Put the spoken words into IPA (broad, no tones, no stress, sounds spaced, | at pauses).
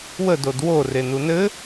w ə d o d w o r e n u n ɘ